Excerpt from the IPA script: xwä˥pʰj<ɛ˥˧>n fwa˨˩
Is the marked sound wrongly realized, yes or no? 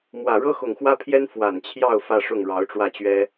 yes